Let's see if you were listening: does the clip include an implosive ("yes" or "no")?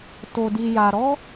no